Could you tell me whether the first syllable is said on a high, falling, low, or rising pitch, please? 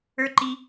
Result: high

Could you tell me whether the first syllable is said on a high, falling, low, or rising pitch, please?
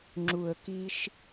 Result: low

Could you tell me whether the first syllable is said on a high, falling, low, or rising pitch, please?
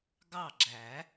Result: falling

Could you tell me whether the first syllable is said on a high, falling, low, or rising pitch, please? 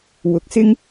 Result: rising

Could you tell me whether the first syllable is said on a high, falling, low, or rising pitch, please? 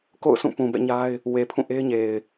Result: falling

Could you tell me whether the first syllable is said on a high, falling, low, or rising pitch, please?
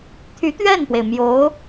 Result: rising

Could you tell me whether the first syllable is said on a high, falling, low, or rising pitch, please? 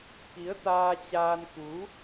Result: rising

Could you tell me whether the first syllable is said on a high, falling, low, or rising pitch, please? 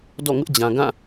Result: falling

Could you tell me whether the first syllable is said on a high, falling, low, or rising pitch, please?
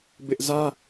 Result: high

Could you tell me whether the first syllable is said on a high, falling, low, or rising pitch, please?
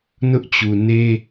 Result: high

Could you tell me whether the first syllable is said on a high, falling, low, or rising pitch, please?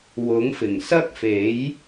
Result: rising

